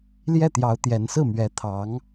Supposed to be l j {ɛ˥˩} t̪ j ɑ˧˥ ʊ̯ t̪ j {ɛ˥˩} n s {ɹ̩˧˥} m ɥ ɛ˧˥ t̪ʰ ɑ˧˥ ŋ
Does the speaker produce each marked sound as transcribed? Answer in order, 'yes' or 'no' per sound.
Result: yes, no, no

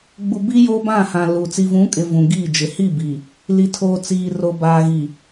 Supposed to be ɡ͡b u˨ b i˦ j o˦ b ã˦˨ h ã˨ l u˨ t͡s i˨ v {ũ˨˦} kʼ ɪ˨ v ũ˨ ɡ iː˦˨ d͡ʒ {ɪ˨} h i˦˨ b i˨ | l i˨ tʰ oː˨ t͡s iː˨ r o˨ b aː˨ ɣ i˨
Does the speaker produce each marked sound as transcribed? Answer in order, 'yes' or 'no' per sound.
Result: yes, yes

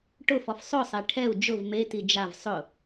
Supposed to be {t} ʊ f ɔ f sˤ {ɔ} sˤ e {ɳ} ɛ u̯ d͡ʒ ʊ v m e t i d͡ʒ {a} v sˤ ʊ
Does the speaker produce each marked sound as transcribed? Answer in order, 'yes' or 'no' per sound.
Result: no, no, no, yes

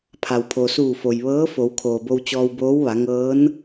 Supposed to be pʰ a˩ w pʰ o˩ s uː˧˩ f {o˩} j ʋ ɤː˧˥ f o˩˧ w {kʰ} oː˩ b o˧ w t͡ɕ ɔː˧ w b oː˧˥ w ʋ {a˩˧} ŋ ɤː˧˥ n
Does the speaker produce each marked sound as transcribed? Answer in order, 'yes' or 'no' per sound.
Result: yes, yes, yes

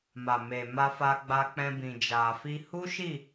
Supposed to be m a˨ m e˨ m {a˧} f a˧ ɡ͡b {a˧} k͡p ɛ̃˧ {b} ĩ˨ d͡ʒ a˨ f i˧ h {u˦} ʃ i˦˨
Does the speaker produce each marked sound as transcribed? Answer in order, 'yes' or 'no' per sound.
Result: yes, yes, yes, yes

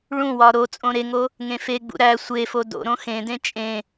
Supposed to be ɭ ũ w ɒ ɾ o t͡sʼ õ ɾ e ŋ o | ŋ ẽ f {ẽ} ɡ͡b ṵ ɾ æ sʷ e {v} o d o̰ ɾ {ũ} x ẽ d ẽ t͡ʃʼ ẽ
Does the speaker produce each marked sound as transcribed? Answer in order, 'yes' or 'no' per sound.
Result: no, no, no

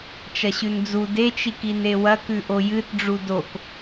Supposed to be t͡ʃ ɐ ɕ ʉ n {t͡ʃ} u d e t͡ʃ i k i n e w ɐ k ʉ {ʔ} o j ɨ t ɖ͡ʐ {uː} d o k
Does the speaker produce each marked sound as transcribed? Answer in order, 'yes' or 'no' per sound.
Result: no, yes, no

